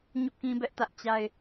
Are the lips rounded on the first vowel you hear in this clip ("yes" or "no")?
yes